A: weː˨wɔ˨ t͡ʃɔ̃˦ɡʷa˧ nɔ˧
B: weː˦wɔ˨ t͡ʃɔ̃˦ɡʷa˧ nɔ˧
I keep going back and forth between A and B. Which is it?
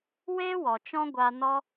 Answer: B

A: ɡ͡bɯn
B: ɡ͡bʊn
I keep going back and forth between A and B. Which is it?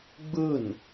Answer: A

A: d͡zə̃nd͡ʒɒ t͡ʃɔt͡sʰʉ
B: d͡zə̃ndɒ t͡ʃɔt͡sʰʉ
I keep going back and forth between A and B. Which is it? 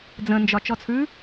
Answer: A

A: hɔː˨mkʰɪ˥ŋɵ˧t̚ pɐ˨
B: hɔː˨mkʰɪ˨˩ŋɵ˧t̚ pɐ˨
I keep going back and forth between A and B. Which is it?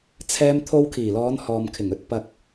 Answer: B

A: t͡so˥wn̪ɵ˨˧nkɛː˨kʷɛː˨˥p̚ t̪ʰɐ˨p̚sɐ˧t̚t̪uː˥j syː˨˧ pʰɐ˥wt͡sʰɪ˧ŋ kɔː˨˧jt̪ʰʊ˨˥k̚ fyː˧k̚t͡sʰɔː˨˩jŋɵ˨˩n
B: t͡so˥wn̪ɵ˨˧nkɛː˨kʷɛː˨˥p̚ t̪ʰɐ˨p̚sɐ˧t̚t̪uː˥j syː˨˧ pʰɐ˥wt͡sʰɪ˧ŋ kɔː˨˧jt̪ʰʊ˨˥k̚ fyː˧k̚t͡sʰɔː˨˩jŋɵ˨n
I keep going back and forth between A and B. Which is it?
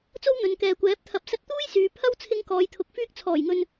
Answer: B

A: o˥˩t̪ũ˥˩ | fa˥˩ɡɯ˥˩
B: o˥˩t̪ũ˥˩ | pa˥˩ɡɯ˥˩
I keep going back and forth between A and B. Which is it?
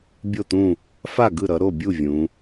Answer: A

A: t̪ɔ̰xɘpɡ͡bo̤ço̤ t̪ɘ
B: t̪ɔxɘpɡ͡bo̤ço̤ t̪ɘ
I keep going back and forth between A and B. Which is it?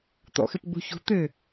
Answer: A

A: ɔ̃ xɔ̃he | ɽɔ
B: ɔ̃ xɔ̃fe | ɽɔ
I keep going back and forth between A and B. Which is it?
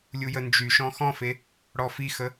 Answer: B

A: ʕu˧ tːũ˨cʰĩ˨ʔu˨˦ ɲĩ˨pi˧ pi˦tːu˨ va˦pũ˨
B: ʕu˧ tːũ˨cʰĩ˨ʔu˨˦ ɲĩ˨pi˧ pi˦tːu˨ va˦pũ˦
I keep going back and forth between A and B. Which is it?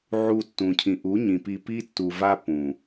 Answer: A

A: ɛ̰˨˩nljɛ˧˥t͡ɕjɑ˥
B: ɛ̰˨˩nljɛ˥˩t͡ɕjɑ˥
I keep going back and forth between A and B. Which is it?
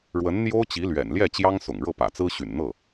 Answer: B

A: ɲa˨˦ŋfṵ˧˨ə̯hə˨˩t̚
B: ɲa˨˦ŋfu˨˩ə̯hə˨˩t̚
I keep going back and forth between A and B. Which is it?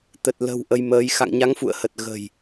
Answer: A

